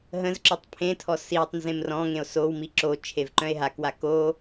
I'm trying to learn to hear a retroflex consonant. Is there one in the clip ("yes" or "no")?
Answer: no